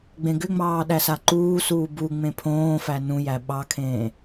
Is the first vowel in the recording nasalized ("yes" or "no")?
yes